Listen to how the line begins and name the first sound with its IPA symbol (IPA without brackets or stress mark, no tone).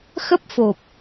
x